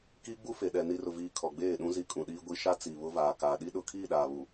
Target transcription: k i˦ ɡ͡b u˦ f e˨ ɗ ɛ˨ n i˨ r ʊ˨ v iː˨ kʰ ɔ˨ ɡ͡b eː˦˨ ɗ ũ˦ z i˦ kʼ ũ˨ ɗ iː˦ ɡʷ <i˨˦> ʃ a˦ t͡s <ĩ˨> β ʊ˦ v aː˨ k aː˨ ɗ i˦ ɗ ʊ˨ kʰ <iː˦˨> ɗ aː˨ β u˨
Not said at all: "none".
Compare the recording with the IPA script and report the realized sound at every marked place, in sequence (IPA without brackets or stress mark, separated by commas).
i˦, i˨, iː˦˨